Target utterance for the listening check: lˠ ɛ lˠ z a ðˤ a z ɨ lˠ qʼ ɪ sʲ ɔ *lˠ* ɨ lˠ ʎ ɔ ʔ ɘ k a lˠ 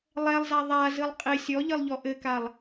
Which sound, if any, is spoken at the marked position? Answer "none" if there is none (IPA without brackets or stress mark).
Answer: ʎ